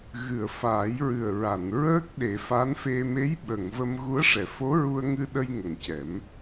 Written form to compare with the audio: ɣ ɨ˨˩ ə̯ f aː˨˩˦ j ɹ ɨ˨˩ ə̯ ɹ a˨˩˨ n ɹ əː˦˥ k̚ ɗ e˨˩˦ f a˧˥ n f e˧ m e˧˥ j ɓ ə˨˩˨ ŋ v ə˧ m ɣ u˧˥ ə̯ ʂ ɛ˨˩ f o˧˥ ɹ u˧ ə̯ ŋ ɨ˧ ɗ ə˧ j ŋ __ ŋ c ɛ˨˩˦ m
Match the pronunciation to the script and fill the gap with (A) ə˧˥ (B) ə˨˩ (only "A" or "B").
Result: B